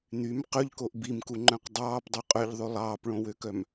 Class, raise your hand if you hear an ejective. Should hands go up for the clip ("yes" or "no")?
yes